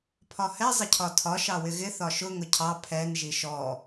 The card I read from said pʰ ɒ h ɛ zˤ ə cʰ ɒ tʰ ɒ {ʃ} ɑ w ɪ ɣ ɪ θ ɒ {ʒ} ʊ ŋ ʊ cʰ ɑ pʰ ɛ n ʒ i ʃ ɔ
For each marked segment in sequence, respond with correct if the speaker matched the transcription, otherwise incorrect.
correct, incorrect: ʃ

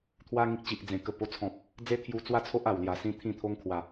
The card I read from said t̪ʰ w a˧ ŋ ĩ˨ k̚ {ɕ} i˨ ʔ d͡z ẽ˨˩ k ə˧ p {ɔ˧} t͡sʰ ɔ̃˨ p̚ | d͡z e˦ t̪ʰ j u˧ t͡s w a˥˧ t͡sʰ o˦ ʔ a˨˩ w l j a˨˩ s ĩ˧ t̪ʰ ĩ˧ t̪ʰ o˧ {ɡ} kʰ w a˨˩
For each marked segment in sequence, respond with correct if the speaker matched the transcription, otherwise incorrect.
incorrect: t͡ɕ, incorrect: o˧, incorrect: ŋ

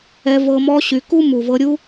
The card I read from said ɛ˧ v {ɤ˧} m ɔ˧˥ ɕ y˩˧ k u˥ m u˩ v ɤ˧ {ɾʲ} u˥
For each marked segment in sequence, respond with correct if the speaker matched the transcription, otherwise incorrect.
correct, correct

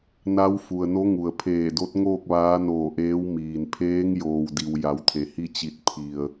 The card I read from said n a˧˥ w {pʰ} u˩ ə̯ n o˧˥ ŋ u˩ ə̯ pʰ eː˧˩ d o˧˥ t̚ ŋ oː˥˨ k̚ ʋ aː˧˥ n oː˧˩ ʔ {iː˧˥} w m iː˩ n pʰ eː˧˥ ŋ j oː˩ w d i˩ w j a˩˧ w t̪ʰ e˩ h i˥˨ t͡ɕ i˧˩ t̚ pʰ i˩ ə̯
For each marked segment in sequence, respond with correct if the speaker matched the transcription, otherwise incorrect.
incorrect: f, incorrect: eː˧˥

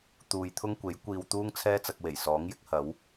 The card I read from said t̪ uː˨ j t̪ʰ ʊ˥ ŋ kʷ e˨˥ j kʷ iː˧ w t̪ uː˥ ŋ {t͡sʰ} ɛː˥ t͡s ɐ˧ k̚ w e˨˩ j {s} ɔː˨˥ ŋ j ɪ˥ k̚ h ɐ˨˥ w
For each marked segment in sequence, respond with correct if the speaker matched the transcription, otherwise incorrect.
correct, correct

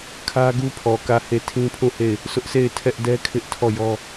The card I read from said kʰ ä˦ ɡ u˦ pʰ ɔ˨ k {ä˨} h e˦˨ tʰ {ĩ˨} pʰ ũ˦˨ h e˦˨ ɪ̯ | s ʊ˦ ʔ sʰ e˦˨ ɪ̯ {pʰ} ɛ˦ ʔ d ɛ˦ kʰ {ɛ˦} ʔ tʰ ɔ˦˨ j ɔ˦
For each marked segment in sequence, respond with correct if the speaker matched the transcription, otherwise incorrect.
incorrect: ä˦˨, incorrect: ĩ˦, incorrect: tʰ, incorrect: ɪ˦

